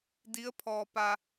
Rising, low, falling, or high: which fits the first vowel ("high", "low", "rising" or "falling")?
rising